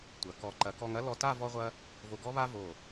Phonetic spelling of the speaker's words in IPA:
tʷ ɐ˩˧ k ɔ˧˩ ǃ ɐ˩˧ k ɔ˧ ŋ ɐ˥ l ɔ˧ t a˥˧ v ɔ˥ ʁʷ ɐ˥ | v o˧ ɡ ɔ˥ β a˥ v o˧˩

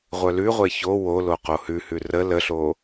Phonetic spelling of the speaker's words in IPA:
ʁʷ œ l ʉ ʁʷ e ç o w o l o q o h ʉ h ʉ r ə l ə ɬ o

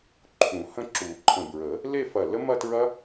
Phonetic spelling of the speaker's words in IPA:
ǃʰ ũ˨˩˦ h ə̃˦˥ ǁ u˨˩˦ ǃʰ ə̃˧˩ b ɹ ə˨˩˦ | l e˥˧ f ɐ˧˩ l ə˦˥ m ɐ˥˧ t ɹ ɐ˦˥

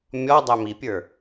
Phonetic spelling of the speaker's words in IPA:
mʲ ɔ dˤ æ m i pʲ ə˞

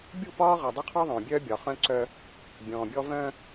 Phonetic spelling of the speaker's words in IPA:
bʲ u˦˨ p ɒː˦ ʁ ɒ˨ dˤ u˦ qʰ ɔ˦ ðˤ œ̃ː˨ bʲ œː˦ bʲ ɒ˨ χ œ̃˦ ǀ œ˦ | bʲ ɔ̃ː˨ bʲ ɔ˦ v œ̃˦

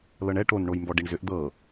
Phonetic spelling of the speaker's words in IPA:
l ɤ ɳ ɛ ʈ o n ɳ o j m b ɔ ɖ i ɳ z ʏ ʔ d̪ ɤ

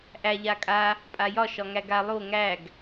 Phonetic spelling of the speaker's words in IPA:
ʔ æ ʎ a kʼ a | pʼ a j ɒ ʃ ɒ ŋ æ ɡ a lˠ o ŋ æ ɡ

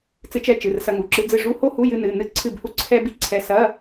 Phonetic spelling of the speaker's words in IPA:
t͡s ɨ˧˥ t͡ʃ ɛ˧˥˧ t͡ʃ ɨ˩˧˩ r s ɐ˧ ŋ u˩˧˩ ǁ ɨ˧˥ d͡z ɨ˥˨ ʐ u˧˥˧ h o˥ h u˧˥˧ j ɨ˧ n ɨ˩˧˩ n ɨ˧˥ ǀʰ ɨ˥˨ b h u˥ ǀʰ ɛ˥ b i˥˨ ǀʰ ɛ˧ s ɐ˧˥˧

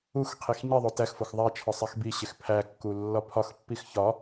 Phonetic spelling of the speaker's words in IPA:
u x qʰ i x ɲ i ðˤ o t æ x f o x ðˤ æ t͡ʃʰ ɒ sˤ æ x b i ɕ e x pʰ æ kː u lː ɒ pʰ ɒ x pː i x ç ɒ

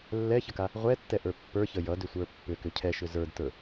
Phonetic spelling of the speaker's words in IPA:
lː ɛ ç ə k a | ʁʷ ɛ tː ɛ ʔ ə˞ pː ə˞ ç ə j ʌ d ʏ sʷ ə˞ pː ʏ k ʏ cʰ ɛ ʃ ʏ z ə˞ d t ə˞

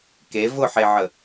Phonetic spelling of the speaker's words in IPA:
k e v ʊ ħ e ʕ ə

